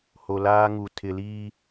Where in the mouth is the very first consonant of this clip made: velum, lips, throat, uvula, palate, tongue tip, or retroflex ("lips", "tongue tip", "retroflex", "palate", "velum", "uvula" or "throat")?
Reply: throat